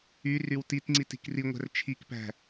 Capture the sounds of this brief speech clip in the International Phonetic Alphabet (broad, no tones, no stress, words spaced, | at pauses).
y rywtitŋ͡ǀit i̤kriŋʷæ̤r t͡ʃʰikpæ̤